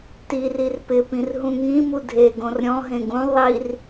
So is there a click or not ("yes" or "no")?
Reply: no